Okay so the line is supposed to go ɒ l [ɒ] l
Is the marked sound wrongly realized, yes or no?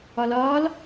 yes